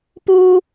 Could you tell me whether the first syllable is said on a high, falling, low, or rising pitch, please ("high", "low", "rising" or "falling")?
high